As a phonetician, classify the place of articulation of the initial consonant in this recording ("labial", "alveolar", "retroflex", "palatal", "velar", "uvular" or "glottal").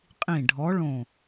uvular